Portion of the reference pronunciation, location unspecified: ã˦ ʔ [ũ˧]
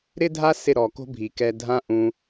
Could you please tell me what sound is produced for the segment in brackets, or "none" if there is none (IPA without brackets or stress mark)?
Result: ũ˧